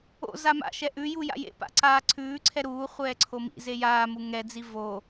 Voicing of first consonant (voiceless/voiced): voiced